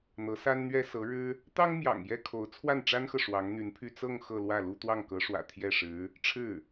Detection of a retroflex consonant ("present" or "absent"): present